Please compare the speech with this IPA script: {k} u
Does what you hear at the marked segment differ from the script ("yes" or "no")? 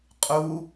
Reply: yes